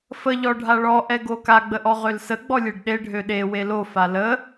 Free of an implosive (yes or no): no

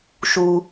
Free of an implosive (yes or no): yes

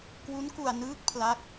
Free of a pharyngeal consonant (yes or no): yes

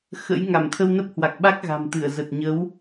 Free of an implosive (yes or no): no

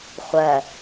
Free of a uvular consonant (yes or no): no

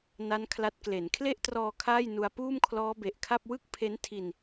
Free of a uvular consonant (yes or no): yes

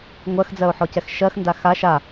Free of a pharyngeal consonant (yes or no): no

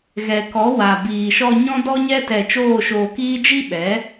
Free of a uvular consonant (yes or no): yes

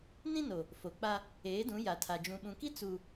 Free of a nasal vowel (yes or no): no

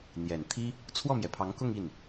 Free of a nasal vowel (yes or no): yes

